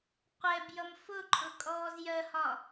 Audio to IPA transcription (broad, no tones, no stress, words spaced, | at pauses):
qʷɛbjʌm fʊǃʼʊ kʼɔːzjɜhɒ